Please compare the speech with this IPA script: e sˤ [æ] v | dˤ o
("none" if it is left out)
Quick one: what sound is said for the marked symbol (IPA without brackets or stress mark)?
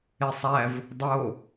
æ